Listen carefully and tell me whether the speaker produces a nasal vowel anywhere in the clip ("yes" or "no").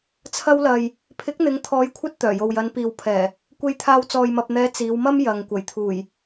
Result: no